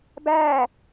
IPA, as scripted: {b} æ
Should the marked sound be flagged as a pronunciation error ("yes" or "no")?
no